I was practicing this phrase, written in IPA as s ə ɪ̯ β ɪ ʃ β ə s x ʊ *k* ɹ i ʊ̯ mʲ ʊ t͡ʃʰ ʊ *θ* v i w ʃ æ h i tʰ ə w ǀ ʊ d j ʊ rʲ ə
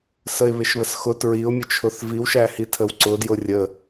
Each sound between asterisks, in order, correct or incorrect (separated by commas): incorrect, correct